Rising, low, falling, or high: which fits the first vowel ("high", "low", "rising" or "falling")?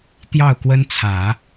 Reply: falling